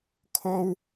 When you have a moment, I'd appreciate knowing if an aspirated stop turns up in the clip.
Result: yes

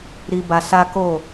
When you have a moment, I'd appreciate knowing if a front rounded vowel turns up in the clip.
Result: no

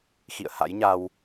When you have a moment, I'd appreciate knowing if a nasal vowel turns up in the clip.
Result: no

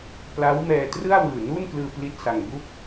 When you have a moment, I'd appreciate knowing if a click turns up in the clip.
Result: no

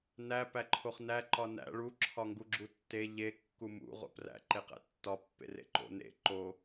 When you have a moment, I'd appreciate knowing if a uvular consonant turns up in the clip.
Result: yes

